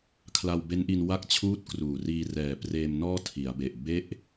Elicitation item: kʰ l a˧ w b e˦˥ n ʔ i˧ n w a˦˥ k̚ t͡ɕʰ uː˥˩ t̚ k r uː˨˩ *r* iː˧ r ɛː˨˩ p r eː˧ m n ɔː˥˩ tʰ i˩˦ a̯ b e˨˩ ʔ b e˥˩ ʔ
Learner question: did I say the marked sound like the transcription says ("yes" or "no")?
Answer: yes